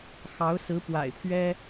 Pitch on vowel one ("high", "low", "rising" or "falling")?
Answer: rising